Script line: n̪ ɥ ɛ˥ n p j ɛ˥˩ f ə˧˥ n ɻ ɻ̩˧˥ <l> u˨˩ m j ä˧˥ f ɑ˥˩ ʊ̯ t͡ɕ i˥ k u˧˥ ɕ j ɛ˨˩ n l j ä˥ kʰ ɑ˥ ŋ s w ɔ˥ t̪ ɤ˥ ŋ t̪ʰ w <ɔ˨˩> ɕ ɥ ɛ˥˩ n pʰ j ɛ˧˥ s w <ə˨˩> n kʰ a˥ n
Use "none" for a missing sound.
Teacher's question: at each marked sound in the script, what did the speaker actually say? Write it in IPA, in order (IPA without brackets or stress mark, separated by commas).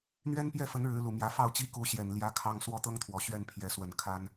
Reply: l, ɔ˨˩, ə˨˩